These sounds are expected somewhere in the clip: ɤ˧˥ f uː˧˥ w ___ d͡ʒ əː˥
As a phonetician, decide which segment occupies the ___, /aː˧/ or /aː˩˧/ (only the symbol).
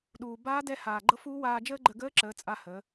aː˧